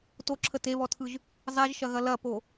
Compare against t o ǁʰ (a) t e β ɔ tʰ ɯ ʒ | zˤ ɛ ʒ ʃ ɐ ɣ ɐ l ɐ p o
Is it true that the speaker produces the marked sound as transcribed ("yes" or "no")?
no